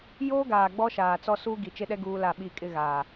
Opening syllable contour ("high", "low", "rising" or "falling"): high